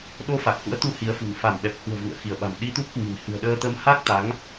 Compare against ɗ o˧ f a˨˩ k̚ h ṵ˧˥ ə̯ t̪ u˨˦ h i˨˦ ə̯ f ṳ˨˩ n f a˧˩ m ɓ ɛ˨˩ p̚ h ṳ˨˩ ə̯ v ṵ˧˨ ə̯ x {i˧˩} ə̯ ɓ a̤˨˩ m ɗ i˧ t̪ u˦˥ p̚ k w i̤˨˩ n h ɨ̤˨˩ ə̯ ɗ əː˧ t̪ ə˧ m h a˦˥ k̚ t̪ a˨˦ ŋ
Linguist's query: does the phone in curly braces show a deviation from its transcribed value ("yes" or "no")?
no